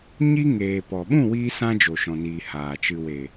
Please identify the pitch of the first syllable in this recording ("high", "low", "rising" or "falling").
high